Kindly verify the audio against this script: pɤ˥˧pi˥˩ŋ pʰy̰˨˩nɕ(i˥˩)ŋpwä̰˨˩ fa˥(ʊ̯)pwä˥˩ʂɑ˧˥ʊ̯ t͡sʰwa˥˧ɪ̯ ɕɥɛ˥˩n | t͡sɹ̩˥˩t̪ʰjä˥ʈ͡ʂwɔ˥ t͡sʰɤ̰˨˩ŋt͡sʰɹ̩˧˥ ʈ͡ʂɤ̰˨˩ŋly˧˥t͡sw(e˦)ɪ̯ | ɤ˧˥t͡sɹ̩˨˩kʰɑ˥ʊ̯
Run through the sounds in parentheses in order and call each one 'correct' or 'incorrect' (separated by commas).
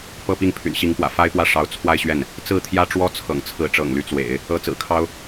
incorrect, incorrect, incorrect